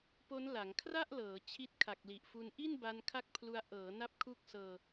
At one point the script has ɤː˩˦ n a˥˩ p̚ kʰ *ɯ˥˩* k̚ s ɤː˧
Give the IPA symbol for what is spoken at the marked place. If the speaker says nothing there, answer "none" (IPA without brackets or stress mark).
u˥˩